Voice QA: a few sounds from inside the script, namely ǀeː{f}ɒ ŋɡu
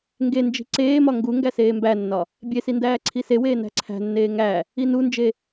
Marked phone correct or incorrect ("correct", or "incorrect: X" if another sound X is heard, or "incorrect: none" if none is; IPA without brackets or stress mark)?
incorrect: m